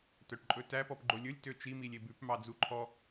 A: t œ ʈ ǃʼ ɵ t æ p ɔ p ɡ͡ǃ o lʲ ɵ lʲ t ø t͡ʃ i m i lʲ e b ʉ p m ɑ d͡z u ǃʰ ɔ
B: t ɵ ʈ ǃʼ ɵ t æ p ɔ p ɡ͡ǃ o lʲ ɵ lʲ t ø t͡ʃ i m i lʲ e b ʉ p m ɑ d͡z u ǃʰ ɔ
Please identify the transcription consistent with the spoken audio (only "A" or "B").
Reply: A